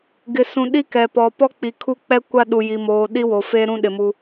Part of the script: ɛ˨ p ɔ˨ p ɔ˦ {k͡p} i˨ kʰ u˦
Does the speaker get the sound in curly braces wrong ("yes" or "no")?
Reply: no